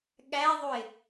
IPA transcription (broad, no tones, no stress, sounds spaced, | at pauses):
ɠ æ ðˤ u ɪ̯